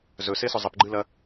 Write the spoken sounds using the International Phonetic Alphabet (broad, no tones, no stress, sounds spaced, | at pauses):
z ɵ s e s ɵ zˤ ə p ɡ͡ǃ ɨ l ɐ